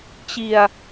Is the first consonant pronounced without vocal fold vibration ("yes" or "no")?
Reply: yes